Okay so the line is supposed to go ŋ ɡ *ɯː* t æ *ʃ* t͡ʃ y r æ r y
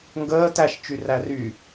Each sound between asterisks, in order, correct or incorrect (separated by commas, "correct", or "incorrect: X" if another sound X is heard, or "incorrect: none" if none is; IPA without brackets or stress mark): incorrect: əː, correct